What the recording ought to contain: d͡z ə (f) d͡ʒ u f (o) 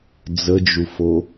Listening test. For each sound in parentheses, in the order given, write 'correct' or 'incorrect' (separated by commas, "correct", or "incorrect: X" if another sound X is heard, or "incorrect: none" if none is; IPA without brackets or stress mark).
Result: incorrect: none, correct